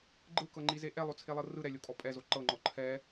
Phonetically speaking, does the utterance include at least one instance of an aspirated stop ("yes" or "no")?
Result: yes